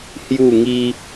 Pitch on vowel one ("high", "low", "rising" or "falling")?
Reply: falling